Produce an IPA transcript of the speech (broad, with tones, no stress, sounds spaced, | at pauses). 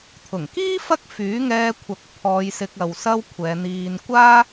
t̪ʰ ʊ˨˩ ŋ k iː˥ f ɐ˥ k̚ f yː˨˥ ŋ ɛː˧ kʷʰ ɐ˨ k̚ pʰ ɔː˧ j s ɪ˧ k̚ ɐ˨ w s ɐ˥ w kʷʰ ɛː˨˧ n̪ iː˧ n kʷ aː˥